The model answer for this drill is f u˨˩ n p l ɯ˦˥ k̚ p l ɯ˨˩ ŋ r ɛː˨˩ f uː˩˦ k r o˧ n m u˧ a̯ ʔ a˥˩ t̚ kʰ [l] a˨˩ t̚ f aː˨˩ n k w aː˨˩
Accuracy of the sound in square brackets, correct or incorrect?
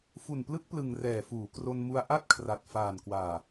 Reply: incorrect